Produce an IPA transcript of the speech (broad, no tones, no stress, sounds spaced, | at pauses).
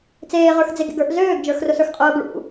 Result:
t͡s eː ʁ ə˞ x d͡z e ɡ ḛ ɡ ə˞ ʔ z øː ɡ d͡ʒ ə˞ x r ʊ s ə˞ x qʼ ʊː ɡ ɭ ṵ